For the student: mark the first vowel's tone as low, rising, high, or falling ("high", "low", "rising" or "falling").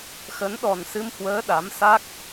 rising